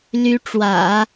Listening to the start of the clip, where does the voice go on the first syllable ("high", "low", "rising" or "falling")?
rising